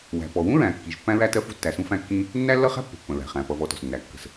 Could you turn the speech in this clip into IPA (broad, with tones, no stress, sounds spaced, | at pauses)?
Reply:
w æ̤˩ p ɔ˩ w ũ˥ ɹ æ̃˩ kː i˩ ʒ pː æ̃˥ ɹ æ˥ t ɜ˥ f ṳ˥ tː æ˩ s ũ˥ f æ̃˥ kː ĩ˥ | nː æ˥ lː ʌ˥ χ æ̤˥ pː ə̤˩ pː ə̃˩ ɹ æ̤˩ χ æ̃˩ p ʌ˩ v ɔ˩ t ɔ̤˩ s nː æ˩ kː ə̤˩ s